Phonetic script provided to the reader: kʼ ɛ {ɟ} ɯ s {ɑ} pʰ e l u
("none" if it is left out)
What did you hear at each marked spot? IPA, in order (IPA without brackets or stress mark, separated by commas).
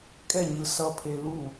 ɲ, ʌ